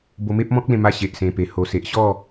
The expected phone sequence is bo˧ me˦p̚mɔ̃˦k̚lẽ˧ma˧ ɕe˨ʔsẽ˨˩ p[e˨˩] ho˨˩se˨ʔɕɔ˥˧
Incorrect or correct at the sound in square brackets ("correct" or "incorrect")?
correct